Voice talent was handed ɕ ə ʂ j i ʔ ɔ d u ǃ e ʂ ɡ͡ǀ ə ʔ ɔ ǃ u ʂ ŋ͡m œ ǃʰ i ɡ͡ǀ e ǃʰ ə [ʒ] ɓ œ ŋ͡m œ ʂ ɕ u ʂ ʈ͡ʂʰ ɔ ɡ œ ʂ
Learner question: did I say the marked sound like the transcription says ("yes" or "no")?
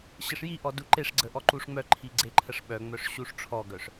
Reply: no